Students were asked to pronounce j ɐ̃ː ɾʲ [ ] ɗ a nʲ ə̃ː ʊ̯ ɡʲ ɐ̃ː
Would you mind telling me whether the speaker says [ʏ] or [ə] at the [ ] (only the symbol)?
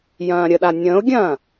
ə